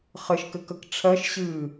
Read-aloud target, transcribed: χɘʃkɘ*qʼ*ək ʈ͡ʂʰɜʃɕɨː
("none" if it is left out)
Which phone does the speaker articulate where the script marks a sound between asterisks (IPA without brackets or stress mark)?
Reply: k